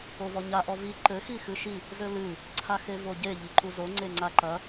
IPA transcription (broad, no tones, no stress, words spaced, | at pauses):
ovɔɲa ʔɔvi ǃɘ xixɨʃi | zɘlɨ | ǀʰaxevoɟe ʎiǃuzo ŋ͡ǀeŋ͡ǀaǃɐ